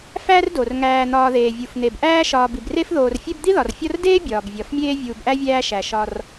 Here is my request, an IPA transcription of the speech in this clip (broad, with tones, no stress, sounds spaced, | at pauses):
f æ˥ r d o˩ r ŋ æː˨ n̪ ɒː˨ ð eː˩ vʲ u˩ f n̪ e˩ b ʔ æː˥ ʃ ɒː˨ b i˩ b r e˥ f ð oː˨ r fʲ e˥ b d̪ i˥ ð ɒ˩ r fʲ ɒ˦ r d eː˥ bʲ ɒː˩ b vʲ ɒ˩ f mʲ eː˥ vʲ uː˨ b ʔ æ˥ vʲ æː˦ ʃ æ˩ ʃ ɒ˨ r